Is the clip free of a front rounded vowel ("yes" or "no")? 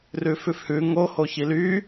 no